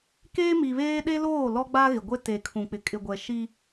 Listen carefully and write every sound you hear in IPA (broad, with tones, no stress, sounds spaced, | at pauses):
k eː˦ m i˨ β eː˦ ɗ e˦ l oː˦˨ l ɔ˦ ɡ͡b a˦ ɣ ɪ˨ ɡʷ e˦ t e˨ kʰ ũ˨ k͡p ɪ˨ kʼ ɪ˨ ɡʷ ɛ˨ ʃ i˦